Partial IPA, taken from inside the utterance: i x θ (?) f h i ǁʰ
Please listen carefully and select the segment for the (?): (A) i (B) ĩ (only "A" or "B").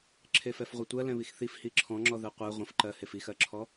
A